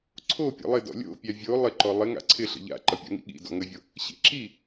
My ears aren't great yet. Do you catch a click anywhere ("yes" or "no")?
yes